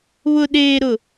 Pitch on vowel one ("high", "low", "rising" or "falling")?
low